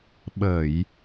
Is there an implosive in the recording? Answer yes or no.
yes